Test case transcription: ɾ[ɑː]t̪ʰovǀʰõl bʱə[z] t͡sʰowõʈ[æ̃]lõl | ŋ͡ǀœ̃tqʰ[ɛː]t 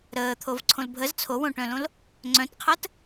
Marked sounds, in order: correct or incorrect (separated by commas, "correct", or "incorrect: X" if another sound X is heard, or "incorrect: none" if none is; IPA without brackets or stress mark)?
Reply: incorrect: əː, correct, incorrect: œ̃, incorrect: əː